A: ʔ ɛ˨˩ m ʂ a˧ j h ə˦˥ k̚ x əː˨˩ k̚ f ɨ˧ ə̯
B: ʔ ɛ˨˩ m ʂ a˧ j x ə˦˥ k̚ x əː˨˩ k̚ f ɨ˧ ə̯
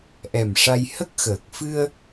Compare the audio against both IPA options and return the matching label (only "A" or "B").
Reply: A